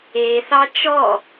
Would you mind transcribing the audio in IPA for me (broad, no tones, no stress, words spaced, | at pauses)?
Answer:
eθɑ t͡ʃɔ